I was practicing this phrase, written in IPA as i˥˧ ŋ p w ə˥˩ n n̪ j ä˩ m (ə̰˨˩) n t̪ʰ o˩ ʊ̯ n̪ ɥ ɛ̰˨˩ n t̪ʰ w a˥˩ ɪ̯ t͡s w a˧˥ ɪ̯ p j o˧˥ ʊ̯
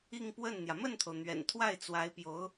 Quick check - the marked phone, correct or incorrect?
incorrect